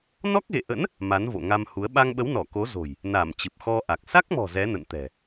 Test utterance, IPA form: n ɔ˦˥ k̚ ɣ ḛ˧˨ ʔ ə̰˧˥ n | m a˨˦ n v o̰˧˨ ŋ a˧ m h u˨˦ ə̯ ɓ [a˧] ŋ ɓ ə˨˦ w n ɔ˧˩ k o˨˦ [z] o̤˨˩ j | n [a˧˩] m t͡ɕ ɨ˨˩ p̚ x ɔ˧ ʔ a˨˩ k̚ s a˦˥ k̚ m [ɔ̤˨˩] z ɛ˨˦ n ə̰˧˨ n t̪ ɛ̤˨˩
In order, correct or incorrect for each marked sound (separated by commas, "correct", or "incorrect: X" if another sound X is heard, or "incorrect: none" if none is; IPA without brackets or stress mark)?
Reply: correct, correct, correct, correct